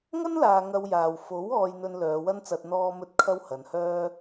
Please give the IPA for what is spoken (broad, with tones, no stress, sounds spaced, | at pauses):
ŋ ɐ˥ n l aː˨ ŋ ɐ˧ w j aː˨ w f o˨˥ w ɔː˧ j n̪ ɵ˧ n l œː˨˧ w ɐ˥ n t͡s ɐ˧ t̚ n̪ ɔː˧ m ɵ˧ t̚ kʰ ɐ˥ w h ɐ˨˧ n h œː˥